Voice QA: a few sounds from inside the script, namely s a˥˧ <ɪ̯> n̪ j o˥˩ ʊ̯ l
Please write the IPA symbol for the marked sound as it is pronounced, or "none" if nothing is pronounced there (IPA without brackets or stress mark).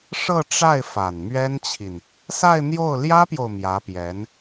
ɪ̯